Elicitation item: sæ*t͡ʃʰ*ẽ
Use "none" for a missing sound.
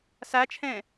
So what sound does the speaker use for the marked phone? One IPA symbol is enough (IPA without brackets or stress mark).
t͡ʃʰ